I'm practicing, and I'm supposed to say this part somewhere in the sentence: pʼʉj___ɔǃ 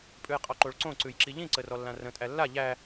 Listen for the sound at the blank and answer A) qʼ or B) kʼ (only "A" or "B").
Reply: A